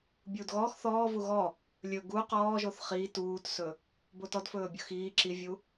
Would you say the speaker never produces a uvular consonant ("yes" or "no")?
no